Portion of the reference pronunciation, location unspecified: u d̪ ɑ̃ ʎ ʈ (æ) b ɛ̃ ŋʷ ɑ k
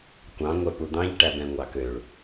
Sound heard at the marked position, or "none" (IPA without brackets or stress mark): æ